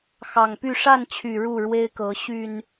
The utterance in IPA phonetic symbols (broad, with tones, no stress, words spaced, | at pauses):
xɑ˨˩ŋpy˥˨ ʂa˥˨nt͡ɕʰy˨˩ ɻu˥˨ɻwe˦ɪ̯kɤ˨˦ ɕy˨˩n